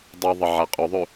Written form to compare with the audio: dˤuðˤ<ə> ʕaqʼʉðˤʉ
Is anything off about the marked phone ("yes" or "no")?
no